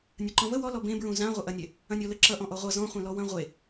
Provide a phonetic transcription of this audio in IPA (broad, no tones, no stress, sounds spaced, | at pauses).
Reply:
nʲ ɐ ǃ ɔ̃ v ə w ɔ l ɔ b ẽ b ɹ ũ z ã ʁʷ ə ʔ ɐ nʲ e | ɐ̃ nʲ ɔ l ə ǁ ʌ ʔ ɔ̃ ʔ ɔ ʁʷ ʌ z ɔ̃ χʷ ẽ l ɔ w ɐ̃ ʁʷ e